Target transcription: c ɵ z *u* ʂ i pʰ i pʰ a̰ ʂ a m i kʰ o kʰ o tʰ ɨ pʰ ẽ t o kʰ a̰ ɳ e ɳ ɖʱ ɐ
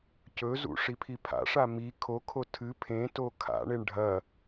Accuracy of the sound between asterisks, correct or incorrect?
incorrect